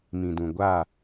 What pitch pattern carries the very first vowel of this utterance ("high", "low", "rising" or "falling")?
low